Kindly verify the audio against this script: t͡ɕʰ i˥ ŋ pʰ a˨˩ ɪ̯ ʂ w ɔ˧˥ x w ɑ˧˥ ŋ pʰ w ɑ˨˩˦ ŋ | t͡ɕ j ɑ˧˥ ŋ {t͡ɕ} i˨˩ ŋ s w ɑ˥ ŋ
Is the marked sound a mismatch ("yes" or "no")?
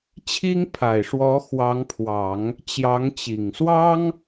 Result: no